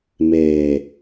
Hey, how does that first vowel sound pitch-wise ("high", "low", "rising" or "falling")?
low